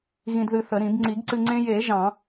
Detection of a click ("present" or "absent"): present